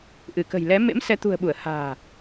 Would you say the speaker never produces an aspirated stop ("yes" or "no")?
yes